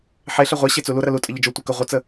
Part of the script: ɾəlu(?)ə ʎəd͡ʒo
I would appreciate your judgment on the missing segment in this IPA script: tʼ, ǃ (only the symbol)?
tʼ